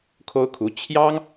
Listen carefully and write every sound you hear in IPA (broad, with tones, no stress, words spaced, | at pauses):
kʰo˥ʊ̯kʰu˧˥ t͡ɕʰjɑ˥ŋ